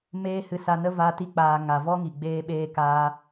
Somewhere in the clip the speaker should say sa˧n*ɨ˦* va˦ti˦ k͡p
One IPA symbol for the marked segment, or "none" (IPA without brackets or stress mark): ə˦